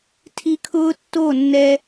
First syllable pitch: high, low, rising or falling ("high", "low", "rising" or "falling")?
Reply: high